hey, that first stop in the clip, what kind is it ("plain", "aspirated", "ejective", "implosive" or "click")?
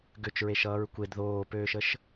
plain